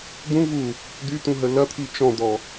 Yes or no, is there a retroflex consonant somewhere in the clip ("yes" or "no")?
no